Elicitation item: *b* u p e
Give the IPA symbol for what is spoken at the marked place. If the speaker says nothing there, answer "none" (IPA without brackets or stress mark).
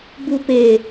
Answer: b